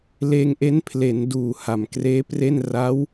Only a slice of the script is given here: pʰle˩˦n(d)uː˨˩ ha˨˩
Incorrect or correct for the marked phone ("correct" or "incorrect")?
correct